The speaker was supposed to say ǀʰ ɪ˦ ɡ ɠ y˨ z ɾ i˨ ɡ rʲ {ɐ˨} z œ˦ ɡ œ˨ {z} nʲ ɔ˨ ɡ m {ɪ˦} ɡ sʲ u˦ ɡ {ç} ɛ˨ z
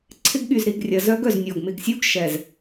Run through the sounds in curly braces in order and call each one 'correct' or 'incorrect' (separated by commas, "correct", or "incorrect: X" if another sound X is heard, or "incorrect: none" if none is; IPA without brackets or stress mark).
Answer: correct, correct, incorrect: ɪ˨, incorrect: ʃ